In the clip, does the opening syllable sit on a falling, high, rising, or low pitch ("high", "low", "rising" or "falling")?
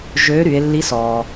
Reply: rising